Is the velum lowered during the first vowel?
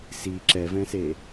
no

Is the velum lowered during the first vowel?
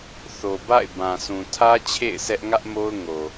no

